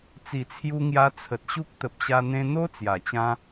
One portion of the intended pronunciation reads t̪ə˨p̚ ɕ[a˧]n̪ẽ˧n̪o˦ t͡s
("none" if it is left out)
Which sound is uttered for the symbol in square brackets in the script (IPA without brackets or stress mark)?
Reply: a˧